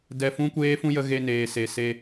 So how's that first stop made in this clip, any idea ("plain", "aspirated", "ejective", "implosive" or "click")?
plain